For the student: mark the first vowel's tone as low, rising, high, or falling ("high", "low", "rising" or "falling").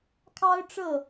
high